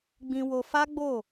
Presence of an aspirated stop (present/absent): absent